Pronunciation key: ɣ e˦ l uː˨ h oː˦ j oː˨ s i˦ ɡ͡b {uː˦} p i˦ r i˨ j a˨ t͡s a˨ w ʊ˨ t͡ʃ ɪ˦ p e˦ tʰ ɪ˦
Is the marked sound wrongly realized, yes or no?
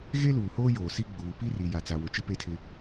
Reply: yes